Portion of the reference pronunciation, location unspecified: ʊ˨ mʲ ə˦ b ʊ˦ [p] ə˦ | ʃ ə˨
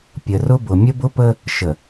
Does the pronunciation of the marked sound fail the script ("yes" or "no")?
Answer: no